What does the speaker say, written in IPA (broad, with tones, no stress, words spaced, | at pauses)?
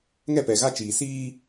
ŋɛ˦˨pɛ˨ɣa˦t͡ʃiː˨ siː˦